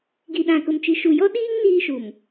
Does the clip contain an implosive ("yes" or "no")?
yes